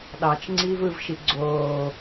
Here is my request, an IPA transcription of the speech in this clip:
ɗ ɑ t͡ʃ ŋ͡ǀ iː v ɯ v ʃ i ɡ͡ǀ oː

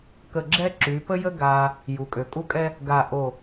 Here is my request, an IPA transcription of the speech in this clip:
k ə˧˩ ɡ͡ǁ ɛ˥ ǁ y˩˧ p ə˥ j ə˥ ɡ a˧ | j u˩˧ kʼ ø˩˧ kʼ u˥˧ kʼ ɛ˥ | ɡ a˧˩ ʔ o˧˩

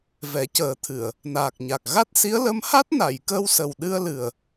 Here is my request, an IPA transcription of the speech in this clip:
v ɛ˨˩˦ c əː˨˩˦ t̪ʰ ɨ˨˩˨ ə̯ | n aː˨˩ k̚ ɲ a˨˩ k̚ ɣ a˦˥ t̚ s i˧˥ ə̯ l ə˧˥ m h a˦˥ t̚ n a˨˩˨ j k əː˧ w s ə˨˩ w ɗ ɨ˧ ə̯ l ɨ˨˩ ə̯

